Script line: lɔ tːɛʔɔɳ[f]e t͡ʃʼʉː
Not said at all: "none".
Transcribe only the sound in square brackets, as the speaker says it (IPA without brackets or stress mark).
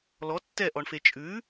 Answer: f